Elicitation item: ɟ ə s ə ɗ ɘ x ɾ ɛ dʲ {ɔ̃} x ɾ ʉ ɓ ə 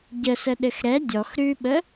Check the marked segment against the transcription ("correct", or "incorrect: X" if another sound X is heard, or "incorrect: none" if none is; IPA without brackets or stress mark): incorrect: ɔ